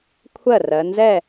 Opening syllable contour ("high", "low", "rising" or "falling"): falling